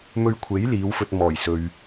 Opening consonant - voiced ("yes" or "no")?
yes